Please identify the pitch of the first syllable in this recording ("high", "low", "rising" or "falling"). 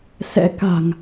rising